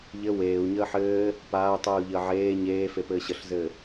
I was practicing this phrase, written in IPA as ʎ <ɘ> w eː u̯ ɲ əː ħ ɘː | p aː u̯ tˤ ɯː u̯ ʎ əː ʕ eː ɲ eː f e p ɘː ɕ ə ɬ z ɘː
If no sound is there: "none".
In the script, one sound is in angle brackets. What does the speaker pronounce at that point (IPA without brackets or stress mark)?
ɘ